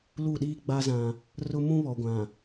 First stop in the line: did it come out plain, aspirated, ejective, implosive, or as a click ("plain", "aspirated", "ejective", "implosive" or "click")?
implosive